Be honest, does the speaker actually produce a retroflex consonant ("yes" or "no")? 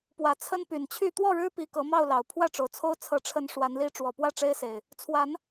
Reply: yes